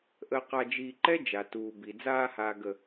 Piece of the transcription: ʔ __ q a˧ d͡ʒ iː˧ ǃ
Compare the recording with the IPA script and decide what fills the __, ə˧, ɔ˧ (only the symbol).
ə˧